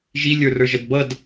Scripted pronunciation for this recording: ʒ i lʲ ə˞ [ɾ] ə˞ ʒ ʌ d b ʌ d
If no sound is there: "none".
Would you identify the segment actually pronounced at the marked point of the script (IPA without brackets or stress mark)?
r